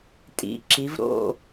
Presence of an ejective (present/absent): present